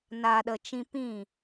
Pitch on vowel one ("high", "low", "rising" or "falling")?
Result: low